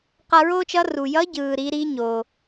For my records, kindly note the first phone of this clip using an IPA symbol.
q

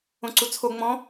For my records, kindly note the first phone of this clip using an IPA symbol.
õ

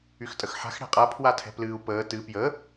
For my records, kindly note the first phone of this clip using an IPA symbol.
y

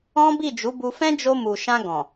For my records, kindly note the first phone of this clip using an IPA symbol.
ɔ̃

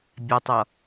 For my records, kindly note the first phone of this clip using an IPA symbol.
bʲ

